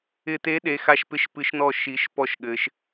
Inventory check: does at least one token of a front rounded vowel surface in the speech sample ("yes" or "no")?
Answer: no